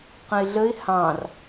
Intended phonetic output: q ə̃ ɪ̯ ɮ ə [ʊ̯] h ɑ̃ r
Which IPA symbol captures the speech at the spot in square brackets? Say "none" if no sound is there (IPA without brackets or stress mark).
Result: ɪ̯